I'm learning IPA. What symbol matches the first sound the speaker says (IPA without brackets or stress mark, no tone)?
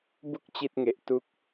b